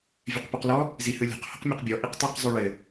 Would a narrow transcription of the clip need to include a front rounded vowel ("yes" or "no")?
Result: yes